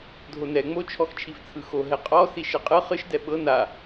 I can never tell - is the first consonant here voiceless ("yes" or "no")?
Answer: no